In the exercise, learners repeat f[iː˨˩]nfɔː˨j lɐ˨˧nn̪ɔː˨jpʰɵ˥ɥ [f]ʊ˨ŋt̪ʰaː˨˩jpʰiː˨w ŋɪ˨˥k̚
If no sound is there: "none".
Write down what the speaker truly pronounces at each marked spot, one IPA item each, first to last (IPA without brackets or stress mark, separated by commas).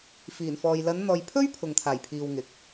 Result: iː˨˩, pʰ